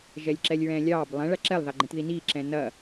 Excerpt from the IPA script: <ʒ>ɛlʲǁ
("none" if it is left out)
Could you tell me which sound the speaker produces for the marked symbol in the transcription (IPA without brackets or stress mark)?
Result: ʒ